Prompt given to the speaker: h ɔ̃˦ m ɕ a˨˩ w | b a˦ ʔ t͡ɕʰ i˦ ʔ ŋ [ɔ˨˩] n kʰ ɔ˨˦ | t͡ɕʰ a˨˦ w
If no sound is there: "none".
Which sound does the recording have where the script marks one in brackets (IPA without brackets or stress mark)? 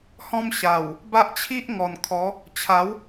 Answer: ɔ˨˩